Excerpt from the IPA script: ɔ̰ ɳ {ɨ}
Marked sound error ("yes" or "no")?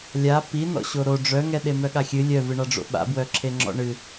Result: no